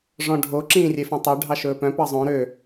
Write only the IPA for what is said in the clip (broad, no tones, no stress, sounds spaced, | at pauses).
ʐ ɔ̃ ɖʱ o ǁ ĩː rʲ e f œ̃ tˤ ø ɖʱ ɑ ʃ ɵː p œ̃ p ɑ zˤ õ ɾ ø